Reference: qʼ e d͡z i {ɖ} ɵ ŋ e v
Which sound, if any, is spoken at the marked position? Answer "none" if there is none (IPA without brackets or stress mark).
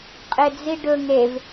ɖ